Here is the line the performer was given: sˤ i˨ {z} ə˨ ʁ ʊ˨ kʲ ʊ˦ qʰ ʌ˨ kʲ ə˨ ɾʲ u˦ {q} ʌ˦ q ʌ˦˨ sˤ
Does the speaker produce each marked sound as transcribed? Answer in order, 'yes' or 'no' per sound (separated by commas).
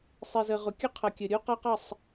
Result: yes, yes